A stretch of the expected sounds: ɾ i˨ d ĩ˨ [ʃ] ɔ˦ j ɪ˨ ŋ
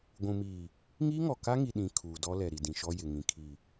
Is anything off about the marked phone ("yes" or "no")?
no